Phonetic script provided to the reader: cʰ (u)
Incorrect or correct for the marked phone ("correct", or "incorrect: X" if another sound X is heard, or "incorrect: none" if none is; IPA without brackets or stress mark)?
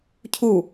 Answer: correct